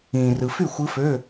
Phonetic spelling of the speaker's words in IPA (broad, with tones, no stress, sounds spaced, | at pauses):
ĩː˨ r ɯ˨ f y˥˩ xʷ ɯ˦˥ f ø˧˥˧